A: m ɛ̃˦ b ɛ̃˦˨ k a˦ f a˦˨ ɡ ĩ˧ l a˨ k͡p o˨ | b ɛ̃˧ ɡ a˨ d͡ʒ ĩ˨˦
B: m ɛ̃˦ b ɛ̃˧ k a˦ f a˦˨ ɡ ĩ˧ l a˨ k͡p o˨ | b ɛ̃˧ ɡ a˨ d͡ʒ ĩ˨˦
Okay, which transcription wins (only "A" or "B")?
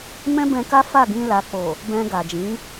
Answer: B